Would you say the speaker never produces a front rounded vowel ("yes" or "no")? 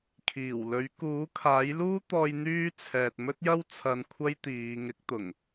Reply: no